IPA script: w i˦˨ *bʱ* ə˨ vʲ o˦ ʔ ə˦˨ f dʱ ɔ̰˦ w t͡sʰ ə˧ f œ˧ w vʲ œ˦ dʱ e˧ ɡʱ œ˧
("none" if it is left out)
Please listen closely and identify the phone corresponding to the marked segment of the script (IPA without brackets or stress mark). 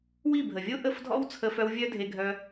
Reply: bʱ